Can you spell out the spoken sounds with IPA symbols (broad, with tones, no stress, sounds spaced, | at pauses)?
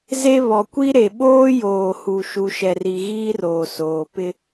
z e˦ β ɔ˨ kʷ i˦ ɾ e˨ ɓ oː˦ j oː˨ h u˨ ʃ u˨ ʃ ɛ˨ r i˨ ɣ iː˦ r oː˨ s oː˨ p ɪ˦